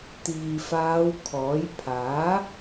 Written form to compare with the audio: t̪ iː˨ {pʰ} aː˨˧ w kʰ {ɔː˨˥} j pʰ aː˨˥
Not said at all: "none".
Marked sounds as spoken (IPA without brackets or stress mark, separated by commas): f, ɔː˨˥